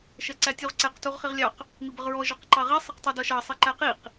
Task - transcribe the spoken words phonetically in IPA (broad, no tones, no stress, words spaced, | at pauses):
ʃɜǀætʲuʁǀæq tuʁχiʁlʲɑq | mibəʁɹɔ ʒɒqǃɑʁi sˤʌqtˤidɒʃɑ sˤiǃæqiq